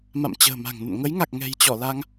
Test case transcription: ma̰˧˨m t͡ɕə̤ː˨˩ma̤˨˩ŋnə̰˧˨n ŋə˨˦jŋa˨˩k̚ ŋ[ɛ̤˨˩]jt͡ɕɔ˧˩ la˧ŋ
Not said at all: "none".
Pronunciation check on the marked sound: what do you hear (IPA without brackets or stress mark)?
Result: ɛ̤˨˩